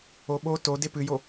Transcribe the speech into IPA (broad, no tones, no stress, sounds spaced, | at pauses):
o ɓ o t o d e p ɨ j o